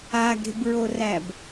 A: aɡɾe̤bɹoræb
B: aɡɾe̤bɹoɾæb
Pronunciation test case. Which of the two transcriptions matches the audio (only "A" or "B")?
A